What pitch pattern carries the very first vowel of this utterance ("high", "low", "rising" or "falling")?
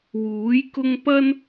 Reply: rising